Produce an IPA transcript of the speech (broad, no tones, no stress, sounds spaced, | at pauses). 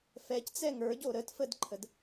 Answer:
f ɛ c t͡s ɛ ŋ ə˞ ɟ o ɾ ə t f ə d ǃʰ ə d